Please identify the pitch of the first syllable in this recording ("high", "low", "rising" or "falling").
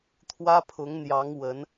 high